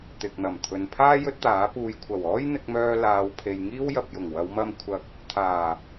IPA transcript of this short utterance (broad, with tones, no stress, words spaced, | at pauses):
t̪ɪ˨k̚n̪ɐ˨˩mt̪ʰɵ˨npʰaː˥ jɵ˥t̚t̪aː˨˥puː˧j kʷʰɐ˨˩wɔː˥j n̪ɪ˧k̚mœː˧ laː˨˧wpʰe˨jŋiː˥w jɐ˨p̚jʊ˨˩ŋ wɐ˨˧wmɐ˧m kʷʰɐ˨k̚ | t̪ʰaː˨˩